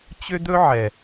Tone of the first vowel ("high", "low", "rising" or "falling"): high